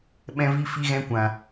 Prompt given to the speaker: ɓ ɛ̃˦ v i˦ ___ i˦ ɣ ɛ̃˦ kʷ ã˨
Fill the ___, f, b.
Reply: f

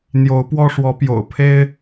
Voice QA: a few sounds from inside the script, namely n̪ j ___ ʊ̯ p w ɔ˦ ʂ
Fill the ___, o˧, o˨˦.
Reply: o˨˦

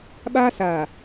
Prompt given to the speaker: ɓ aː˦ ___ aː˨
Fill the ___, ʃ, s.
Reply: s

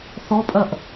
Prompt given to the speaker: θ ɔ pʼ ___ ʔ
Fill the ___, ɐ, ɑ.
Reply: ɐ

